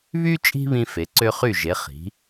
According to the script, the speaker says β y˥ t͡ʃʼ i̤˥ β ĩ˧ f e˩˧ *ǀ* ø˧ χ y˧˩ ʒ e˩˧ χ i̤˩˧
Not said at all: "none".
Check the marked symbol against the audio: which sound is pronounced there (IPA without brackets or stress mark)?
ǀ